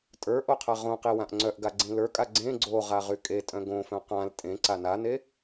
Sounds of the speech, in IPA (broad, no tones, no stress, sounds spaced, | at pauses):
tʼ ə˞ ʔ o qʰ a ʁ õ q i w ã ʔ ŋ͡ǀ œ ʔ ɡ a ɡ͡ǀ ĩ l ə˞ kʼ a ɡ͡ǀ ẽ ɡ͡ǀ o ʁ a ʁ y kʼ e tʼ œ̃ ɡ õ f œ̃ q ã l tʼ ẽ ǀ a n a n e